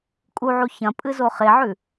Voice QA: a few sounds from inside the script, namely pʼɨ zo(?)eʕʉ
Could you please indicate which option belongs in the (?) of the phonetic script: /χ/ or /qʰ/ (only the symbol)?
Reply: χ